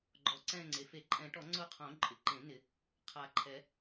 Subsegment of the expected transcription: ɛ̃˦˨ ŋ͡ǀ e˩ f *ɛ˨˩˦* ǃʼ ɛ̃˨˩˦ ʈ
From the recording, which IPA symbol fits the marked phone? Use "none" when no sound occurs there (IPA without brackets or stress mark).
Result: e˨˩˦